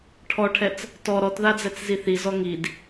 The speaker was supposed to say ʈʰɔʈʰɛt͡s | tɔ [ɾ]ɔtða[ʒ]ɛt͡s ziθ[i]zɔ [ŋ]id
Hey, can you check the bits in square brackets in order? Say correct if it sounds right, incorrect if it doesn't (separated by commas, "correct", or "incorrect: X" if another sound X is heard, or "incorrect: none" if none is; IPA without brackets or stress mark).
correct, incorrect: d͡z, correct, correct